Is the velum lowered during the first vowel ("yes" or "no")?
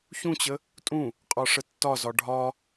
yes